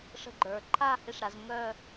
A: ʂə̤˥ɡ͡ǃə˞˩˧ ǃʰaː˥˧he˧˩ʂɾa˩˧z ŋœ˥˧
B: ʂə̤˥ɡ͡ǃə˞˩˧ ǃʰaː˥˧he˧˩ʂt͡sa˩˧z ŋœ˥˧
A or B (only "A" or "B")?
A